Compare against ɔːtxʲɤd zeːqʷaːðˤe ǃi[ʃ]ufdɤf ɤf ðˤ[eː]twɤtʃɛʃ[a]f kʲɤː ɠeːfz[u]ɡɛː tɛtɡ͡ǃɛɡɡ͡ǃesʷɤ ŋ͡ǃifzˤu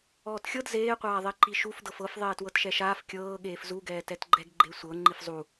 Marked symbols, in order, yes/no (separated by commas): yes, yes, no, yes